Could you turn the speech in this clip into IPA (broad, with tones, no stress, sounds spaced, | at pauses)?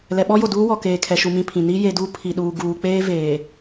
l ɛ˨ ɓ ɔ˦ j o˨ d uː˦ w ɔ˨ k eː˨ kʰ ɛ˨ ʃ u˨ m ĩ˨ pʰ ĩ˨ n i˦ j e˨ d u˦ pʰ i˨ ɗ uː˨ ɡ uː˨ k͡p eː˦ v eː˨